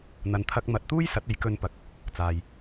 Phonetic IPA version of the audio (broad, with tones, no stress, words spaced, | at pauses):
n̪ɐ˨nt̪ʰɐ˧k̚ mɐ˨˥t̚t̪uː˥j sɐ˨˥t̚e˨˥j kɵ˧npɐ˨k̚ | t͡saː˨j